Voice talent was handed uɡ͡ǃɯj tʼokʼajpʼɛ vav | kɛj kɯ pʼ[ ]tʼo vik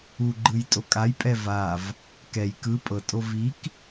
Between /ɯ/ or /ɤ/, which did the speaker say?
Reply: ɤ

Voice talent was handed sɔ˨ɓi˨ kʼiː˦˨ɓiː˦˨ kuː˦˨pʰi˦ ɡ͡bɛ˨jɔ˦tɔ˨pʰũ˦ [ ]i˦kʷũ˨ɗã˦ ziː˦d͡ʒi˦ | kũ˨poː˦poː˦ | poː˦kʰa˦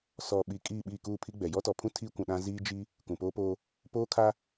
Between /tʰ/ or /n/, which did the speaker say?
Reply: tʰ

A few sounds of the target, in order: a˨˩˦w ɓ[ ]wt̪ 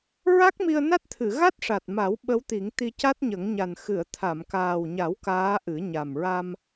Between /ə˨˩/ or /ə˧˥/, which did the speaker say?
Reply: ə˧˥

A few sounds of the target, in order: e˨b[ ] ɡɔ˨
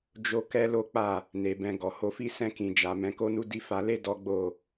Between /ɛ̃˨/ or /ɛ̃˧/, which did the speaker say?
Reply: ɛ̃˧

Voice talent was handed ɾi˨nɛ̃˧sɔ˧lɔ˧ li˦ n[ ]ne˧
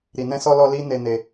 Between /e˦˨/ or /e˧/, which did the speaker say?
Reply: e˧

